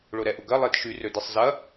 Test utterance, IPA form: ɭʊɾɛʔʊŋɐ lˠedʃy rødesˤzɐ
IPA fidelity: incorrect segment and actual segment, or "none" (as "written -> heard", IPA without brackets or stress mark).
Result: ŋ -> ɡ